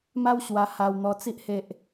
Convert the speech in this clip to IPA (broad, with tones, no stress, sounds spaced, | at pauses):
m a˦ w ɕ w a˧ h a˧ w n̪ ɔ˧ t͡s i˦ ʔ h e˦ ʔ